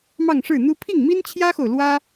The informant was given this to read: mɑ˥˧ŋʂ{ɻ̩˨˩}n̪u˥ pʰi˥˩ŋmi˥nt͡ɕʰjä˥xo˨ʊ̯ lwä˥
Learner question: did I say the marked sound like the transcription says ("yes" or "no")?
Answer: no